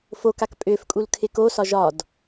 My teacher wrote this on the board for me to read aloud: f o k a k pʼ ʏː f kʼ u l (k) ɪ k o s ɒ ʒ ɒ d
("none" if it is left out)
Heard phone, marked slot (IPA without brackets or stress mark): kʰ